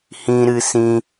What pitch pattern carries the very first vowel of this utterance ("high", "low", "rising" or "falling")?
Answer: high